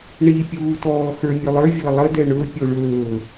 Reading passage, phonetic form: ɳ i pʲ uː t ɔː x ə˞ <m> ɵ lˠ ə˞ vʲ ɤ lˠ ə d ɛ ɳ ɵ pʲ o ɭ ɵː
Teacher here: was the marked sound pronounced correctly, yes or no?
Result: no